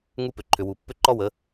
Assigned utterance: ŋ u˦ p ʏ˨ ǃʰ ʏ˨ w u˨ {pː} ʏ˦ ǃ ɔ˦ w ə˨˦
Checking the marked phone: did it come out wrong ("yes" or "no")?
no